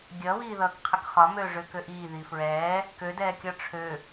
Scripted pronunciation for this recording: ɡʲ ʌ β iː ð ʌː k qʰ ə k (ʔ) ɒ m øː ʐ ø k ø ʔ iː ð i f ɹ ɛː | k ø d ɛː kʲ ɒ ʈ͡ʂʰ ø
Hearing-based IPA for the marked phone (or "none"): χ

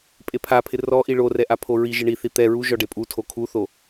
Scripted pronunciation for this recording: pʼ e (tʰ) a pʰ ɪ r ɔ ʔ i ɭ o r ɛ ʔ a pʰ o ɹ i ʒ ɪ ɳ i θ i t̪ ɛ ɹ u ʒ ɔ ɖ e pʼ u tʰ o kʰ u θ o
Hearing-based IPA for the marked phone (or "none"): pʰ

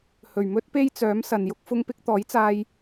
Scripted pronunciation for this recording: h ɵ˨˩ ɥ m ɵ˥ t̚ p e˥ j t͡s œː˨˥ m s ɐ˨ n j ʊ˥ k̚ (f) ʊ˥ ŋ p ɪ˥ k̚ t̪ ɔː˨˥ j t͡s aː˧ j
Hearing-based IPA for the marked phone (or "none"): f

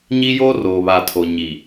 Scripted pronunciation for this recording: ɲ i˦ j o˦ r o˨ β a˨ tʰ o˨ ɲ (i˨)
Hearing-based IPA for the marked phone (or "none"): i˨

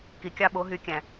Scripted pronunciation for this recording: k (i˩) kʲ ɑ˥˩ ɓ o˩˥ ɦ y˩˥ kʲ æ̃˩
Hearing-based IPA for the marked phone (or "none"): i˩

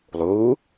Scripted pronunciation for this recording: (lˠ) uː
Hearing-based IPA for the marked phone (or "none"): lˠ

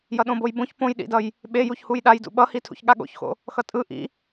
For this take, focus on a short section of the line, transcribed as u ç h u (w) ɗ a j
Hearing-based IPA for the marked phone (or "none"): j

